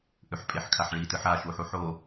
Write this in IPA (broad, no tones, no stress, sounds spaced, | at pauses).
ʔ ʉ ħ pʼ e ħ kʰ a ħ ɭ i t ɨ ħ a ʃ u ħ u ħ o